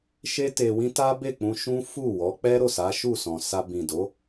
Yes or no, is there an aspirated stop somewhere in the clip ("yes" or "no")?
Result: no